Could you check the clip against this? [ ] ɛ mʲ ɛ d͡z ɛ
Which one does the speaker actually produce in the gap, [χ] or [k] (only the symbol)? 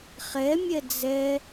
χ